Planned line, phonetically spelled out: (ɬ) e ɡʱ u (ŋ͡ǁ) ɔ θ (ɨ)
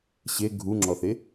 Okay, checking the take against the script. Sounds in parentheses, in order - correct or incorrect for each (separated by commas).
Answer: incorrect, correct, incorrect